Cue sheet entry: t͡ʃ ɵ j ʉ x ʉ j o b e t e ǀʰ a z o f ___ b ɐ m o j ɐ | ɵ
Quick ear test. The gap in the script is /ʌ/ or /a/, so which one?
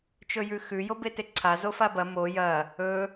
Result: a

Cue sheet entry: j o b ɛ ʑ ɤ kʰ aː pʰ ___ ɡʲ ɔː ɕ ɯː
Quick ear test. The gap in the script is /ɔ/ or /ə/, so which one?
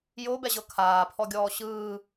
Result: ɔ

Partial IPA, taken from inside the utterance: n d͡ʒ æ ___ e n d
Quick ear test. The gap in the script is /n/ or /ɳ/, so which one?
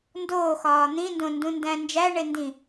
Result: ɳ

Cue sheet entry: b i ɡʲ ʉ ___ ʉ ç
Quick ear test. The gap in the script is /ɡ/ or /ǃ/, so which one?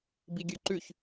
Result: ǃ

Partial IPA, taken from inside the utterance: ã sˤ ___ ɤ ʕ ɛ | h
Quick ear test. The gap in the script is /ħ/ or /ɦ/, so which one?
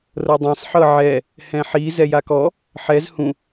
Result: ħ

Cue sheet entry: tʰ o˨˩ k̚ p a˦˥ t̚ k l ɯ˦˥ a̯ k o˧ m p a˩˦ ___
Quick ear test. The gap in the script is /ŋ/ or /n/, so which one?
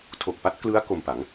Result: ŋ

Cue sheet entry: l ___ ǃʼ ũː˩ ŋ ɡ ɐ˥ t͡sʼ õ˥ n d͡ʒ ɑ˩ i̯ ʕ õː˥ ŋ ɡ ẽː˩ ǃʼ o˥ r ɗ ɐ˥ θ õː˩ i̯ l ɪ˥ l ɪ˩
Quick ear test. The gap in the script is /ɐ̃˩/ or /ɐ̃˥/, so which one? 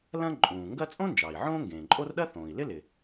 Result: ɐ̃˥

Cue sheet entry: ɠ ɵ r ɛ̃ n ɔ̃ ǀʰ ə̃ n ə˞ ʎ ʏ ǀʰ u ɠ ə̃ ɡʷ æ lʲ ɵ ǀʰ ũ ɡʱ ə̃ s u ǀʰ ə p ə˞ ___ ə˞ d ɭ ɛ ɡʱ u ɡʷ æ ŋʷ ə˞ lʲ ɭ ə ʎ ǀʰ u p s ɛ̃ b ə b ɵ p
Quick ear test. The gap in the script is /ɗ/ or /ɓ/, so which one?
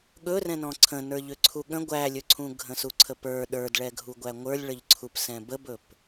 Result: ɗ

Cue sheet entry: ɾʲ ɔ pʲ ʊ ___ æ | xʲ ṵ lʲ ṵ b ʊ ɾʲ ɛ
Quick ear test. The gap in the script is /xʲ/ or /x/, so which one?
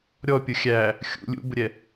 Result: xʲ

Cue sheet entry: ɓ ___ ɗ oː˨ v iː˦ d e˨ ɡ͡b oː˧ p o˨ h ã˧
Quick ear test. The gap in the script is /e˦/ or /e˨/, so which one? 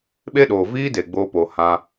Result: e˦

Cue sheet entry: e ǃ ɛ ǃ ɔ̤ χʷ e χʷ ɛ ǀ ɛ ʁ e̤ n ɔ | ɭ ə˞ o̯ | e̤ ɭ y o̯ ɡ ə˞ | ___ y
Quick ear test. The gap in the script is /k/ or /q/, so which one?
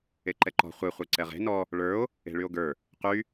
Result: q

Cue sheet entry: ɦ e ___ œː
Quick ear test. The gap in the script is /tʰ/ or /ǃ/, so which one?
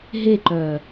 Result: ǃ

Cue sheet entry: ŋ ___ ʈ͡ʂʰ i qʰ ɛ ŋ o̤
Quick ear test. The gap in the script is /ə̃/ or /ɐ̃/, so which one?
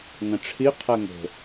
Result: ɐ̃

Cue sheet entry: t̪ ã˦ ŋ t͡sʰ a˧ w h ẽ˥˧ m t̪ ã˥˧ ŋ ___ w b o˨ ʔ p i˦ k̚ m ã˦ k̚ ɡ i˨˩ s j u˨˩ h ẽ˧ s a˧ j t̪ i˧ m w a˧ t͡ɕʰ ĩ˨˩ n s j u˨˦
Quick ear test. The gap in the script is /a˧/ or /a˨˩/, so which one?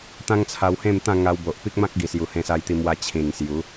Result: a˧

